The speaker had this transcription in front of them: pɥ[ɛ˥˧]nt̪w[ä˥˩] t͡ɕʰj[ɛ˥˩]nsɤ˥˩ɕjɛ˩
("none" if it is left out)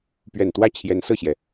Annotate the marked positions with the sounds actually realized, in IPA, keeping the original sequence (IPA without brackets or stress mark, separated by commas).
ɛ˨˩, ä˥˩, ɛ˧˥